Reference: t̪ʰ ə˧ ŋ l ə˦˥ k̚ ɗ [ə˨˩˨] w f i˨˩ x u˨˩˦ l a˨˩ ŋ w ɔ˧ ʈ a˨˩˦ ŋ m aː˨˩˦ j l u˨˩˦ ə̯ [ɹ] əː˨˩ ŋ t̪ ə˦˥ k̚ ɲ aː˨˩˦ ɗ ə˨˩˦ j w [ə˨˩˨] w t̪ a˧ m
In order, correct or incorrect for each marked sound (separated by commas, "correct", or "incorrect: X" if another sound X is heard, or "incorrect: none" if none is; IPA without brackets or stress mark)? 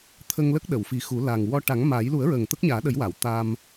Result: correct, correct, incorrect: a˨˩˨